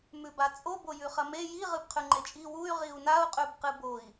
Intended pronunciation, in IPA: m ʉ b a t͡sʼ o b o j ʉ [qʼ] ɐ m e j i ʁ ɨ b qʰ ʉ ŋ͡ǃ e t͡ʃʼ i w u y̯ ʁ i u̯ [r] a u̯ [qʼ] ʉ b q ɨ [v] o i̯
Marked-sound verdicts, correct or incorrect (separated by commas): incorrect, incorrect, correct, incorrect